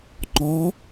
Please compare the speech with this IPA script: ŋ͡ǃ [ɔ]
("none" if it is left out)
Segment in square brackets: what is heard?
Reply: ɔ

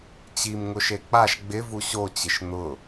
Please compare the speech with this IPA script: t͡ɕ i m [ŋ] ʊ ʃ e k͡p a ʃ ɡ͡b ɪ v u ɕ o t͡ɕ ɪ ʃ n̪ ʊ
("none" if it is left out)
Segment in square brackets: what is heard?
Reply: ŋ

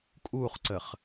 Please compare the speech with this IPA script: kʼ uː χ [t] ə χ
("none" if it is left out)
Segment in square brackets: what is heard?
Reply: ǀ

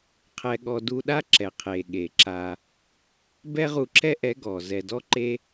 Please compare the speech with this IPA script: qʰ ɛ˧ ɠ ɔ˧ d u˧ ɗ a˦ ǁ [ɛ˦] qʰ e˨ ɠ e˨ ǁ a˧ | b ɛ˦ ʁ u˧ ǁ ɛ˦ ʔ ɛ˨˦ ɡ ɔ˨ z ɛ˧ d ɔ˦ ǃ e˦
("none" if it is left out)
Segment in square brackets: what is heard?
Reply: ɛ˨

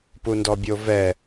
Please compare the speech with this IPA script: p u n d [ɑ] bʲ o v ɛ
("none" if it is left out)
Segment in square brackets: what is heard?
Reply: ɔ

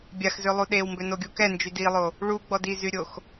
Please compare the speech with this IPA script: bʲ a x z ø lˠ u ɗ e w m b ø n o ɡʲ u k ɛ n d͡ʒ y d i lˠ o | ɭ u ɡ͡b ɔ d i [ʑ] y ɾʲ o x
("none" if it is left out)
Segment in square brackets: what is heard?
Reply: z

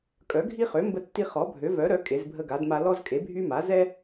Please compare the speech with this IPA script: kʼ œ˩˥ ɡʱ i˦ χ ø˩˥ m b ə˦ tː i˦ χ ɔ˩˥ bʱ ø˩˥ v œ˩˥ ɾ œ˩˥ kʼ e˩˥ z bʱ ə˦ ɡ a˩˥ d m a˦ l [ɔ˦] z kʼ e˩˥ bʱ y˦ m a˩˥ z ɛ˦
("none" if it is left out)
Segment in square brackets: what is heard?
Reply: ɔ˦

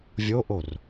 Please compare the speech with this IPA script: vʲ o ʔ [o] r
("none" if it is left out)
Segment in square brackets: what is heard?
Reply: o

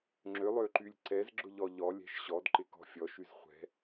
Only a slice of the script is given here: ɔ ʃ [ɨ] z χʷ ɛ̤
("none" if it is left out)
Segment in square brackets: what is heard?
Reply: y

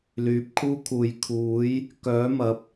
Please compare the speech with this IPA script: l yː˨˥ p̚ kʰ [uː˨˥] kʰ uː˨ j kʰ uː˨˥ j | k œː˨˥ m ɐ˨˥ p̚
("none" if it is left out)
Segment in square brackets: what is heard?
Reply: uː˥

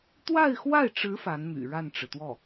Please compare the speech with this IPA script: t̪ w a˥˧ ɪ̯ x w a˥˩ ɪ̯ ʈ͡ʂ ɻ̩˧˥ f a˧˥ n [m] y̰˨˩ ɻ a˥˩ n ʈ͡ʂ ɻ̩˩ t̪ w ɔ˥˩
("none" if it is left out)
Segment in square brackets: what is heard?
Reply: m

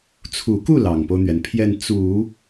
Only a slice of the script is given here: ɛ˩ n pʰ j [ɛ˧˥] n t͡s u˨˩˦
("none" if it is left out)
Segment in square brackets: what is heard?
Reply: ɛ˥˩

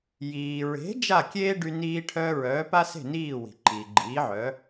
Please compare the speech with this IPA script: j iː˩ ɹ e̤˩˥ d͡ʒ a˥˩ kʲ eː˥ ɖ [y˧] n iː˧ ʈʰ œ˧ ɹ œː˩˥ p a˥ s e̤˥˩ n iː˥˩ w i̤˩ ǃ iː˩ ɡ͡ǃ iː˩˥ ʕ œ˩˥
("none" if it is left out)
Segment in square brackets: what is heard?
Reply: y˧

